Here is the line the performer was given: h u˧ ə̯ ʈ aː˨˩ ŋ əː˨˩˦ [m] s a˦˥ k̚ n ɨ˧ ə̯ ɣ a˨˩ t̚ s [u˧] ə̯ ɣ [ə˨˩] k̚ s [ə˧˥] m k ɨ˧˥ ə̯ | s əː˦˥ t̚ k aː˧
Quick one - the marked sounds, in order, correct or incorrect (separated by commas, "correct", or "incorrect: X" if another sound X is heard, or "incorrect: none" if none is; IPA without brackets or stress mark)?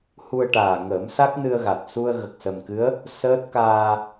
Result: correct, correct, correct, incorrect: ə˨˩